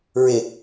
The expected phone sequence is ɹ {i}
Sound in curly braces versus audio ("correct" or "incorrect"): incorrect